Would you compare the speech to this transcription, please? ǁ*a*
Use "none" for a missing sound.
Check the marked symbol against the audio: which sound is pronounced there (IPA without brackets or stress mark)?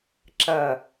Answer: ɐ